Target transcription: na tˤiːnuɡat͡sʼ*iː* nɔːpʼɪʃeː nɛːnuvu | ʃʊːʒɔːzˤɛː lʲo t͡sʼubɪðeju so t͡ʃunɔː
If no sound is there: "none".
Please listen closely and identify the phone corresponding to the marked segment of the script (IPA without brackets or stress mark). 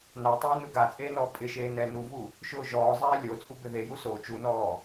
eː